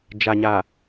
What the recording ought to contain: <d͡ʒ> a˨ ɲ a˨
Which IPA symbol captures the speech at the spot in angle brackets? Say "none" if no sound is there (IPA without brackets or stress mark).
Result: d͡ʒ